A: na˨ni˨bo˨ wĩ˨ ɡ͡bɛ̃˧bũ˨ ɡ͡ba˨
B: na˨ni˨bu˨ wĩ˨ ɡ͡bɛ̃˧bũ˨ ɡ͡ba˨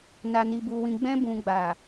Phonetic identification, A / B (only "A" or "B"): B